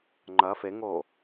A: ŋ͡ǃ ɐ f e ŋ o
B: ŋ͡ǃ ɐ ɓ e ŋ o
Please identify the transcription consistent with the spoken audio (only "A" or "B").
A